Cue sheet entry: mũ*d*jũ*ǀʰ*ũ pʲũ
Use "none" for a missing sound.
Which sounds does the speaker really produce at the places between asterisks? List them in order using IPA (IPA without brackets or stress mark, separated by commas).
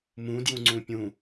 d, ŋ͡ǀ